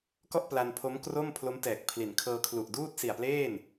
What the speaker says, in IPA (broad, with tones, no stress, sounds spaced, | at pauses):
k ɔ˥˩ ʔ p l a˧ n pʰ o˦˥ m k r o˥˩ m pʰ l o˦˥ m t ɛː˨˩ k̚ pʰ l i˩˦ n kʰ ɤː˧ kʰ l u˨˩ ʔ d uː˥˩ t̚ s i˨˩ a̯ p l eː˥˩ n